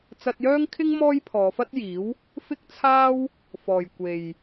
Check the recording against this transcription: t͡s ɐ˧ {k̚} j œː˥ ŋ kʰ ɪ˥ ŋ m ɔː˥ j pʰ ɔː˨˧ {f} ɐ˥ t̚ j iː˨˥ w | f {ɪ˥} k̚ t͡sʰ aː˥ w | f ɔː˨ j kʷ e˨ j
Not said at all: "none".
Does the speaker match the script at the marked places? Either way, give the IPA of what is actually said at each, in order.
t̚, f, ɪ˥

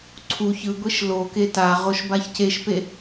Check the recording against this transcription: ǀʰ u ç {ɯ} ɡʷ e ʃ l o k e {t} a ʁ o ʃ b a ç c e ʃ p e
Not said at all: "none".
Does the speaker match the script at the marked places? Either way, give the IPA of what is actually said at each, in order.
ɯ, t

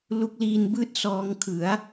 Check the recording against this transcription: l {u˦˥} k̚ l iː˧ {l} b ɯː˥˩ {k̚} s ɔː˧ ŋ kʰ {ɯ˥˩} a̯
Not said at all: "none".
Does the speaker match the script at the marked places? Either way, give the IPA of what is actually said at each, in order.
u˦˥, n, t̚, ɯ˩˦

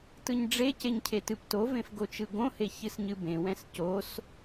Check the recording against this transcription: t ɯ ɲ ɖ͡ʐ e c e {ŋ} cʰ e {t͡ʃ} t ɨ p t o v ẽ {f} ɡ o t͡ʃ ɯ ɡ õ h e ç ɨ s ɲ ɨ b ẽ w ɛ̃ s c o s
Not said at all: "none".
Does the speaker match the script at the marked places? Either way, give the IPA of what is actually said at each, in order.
ɲ, none, f

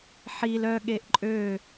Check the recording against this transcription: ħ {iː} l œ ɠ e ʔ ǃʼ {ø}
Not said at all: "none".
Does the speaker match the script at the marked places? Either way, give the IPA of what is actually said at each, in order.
i, ø

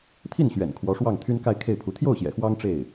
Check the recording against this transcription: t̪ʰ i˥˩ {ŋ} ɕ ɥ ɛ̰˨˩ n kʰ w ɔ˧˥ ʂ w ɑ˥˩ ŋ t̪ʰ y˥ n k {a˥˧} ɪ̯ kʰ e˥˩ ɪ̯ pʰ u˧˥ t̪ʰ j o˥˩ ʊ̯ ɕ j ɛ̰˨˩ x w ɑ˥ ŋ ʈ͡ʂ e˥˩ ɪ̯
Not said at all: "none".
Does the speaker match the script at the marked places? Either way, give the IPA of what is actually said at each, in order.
n, a˥˧

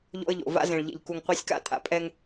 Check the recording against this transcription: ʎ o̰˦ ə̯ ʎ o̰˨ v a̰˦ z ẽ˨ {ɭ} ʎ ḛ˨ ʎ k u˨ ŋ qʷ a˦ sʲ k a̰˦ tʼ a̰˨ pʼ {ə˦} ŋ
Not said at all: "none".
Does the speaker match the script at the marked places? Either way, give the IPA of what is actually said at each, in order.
ɭ, ɛ˦

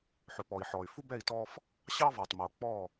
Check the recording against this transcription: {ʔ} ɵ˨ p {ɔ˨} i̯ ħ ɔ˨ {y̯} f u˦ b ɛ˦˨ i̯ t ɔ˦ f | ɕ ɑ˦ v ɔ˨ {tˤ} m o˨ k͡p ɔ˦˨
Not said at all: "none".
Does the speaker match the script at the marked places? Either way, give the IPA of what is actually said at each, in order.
ħ, ɔ˨, y̯, tˤ

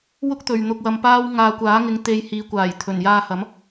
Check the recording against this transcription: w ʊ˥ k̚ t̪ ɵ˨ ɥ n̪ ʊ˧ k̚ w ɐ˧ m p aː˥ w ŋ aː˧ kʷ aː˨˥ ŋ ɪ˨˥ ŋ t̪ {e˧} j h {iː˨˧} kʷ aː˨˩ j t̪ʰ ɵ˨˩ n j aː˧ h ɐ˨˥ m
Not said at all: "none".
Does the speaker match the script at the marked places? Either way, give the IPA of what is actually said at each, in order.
e˧, iː˨˧

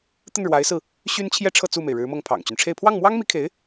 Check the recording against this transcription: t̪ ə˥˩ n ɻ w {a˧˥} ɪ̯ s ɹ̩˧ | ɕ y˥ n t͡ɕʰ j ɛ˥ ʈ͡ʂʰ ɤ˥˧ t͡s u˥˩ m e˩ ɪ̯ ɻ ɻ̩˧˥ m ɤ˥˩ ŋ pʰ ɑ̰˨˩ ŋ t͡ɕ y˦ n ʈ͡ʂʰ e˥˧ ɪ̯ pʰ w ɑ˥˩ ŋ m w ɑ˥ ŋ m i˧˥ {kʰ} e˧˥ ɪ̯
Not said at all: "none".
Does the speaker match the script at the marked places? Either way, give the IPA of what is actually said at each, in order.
a˧˥, kʰ

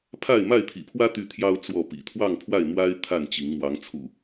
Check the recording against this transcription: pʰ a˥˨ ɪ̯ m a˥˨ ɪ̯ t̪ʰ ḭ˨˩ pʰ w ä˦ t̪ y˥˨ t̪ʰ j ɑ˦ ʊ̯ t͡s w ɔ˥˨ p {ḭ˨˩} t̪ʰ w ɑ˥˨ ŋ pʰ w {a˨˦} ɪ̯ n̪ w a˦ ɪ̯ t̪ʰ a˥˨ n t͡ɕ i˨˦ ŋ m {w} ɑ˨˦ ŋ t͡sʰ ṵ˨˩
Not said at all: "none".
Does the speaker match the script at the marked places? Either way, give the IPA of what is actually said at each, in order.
ḭ˨˩, a˥˨, w

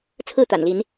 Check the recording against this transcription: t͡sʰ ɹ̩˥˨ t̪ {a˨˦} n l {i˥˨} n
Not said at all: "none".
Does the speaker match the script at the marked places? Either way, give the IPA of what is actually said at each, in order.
a̰˨˩, i˨˦

